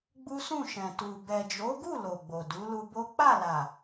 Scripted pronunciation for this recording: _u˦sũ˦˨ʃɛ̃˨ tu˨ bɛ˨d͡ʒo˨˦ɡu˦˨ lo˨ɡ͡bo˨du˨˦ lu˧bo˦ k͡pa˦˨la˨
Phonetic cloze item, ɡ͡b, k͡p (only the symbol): ɡ͡b